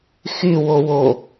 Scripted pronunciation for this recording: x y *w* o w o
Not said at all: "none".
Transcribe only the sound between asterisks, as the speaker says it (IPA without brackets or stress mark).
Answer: w